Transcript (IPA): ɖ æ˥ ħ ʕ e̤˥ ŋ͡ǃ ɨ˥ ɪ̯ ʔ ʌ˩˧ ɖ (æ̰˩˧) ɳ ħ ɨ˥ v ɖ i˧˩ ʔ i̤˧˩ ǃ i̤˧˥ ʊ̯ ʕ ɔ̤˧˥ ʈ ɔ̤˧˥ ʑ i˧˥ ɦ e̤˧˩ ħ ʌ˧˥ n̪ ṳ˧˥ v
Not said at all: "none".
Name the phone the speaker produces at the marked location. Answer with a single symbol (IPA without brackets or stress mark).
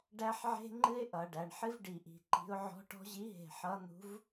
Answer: æ˩˧